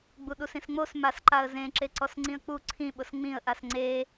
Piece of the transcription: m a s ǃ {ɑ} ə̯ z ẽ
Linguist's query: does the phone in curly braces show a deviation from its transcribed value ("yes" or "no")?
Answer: yes